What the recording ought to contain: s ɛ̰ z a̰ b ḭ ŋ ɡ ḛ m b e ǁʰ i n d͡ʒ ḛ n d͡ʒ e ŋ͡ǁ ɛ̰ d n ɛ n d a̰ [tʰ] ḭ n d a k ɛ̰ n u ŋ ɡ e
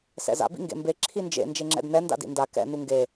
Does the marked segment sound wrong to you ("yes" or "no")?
yes